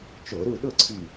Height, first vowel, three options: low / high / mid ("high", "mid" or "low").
mid